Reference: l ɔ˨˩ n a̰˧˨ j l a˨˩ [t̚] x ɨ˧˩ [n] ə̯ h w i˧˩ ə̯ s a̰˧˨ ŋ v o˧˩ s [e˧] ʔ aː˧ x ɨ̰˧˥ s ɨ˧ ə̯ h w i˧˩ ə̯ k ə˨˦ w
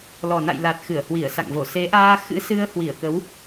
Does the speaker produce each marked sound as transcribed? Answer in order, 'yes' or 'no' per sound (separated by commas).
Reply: yes, no, no